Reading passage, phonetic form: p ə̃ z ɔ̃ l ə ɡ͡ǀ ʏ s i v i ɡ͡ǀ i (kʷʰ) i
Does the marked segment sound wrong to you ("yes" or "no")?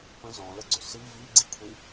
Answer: no